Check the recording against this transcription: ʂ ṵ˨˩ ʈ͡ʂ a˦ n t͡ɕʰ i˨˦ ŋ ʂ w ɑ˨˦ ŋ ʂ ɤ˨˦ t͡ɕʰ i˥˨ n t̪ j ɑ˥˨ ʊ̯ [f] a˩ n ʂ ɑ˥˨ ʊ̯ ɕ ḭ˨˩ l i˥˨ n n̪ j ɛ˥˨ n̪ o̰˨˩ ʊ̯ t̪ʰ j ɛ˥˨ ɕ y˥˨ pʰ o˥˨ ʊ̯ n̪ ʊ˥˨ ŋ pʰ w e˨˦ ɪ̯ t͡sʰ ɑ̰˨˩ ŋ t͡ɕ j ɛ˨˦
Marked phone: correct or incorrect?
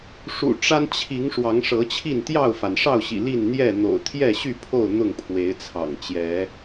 correct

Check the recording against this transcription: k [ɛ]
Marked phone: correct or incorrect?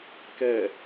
correct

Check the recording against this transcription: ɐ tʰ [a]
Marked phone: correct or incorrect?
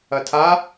correct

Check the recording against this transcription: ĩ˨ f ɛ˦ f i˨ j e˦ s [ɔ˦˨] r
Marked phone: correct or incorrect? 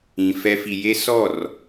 correct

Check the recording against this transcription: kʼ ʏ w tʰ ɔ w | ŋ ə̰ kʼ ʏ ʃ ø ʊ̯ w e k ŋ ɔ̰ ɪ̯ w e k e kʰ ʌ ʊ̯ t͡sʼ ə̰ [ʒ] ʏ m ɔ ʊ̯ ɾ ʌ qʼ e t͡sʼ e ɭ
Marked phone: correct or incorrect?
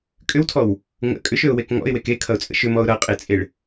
incorrect: ʃ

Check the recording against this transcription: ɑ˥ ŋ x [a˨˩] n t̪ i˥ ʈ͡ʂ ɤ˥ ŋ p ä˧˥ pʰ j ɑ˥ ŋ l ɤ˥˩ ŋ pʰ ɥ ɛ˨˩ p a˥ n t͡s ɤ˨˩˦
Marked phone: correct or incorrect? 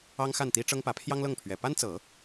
incorrect: a˥˩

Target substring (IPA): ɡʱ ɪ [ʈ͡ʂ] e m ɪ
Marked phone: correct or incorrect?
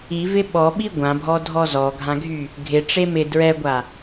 correct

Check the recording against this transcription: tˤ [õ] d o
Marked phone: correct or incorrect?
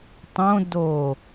correct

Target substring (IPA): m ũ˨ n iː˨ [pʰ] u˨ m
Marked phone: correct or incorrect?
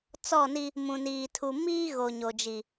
incorrect: tʰ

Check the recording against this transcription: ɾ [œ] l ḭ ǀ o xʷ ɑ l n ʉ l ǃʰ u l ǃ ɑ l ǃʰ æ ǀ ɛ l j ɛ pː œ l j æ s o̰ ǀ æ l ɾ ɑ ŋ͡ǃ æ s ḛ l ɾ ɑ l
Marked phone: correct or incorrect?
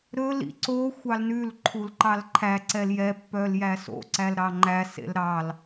incorrect: ɵ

